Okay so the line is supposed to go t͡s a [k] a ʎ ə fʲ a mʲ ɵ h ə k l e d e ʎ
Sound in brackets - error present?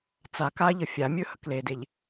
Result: no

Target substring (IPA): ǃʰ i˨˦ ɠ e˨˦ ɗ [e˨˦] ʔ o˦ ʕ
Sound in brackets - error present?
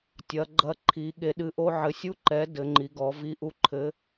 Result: yes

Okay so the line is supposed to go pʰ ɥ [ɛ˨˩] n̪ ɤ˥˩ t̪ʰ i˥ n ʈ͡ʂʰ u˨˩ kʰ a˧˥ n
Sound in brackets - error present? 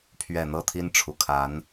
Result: no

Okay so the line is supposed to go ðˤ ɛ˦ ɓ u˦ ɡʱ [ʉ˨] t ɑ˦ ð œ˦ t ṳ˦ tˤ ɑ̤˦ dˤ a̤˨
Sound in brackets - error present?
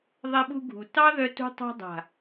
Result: yes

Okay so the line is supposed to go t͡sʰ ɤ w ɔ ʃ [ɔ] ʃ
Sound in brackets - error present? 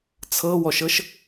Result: yes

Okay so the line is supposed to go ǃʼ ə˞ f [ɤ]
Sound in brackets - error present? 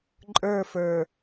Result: yes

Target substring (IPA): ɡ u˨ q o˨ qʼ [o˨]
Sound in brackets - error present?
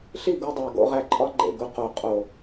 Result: no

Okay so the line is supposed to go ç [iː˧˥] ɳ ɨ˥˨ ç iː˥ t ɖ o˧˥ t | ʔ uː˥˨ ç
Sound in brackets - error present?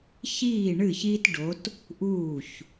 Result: yes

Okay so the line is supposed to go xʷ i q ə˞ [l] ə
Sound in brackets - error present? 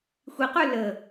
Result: no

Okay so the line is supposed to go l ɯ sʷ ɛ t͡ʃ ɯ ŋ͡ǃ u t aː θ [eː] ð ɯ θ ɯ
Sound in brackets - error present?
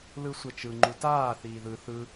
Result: yes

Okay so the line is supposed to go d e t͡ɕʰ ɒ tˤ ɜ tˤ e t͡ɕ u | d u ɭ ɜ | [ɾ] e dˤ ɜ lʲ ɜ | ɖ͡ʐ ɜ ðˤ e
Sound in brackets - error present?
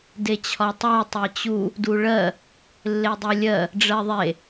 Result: yes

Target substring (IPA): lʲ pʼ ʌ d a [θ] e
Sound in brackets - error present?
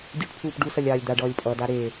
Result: yes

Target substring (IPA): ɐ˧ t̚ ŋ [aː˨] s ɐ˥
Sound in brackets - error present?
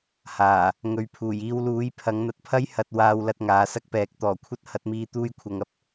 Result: yes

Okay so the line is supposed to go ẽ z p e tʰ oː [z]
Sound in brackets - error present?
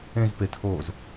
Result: no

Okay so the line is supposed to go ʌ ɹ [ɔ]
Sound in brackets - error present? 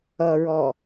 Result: no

